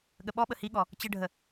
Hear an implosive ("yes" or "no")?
yes